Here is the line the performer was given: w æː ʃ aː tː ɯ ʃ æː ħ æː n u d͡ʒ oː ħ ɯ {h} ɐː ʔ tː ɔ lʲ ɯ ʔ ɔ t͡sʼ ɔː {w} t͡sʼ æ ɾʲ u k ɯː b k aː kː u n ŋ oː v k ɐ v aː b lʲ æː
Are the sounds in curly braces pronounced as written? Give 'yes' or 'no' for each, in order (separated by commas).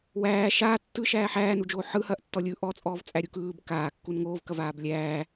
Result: yes, no